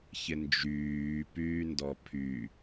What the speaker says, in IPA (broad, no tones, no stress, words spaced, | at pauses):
çɪnd͡ʒyːpyː ndɔpʰy